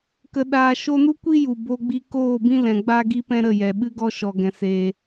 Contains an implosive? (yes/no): yes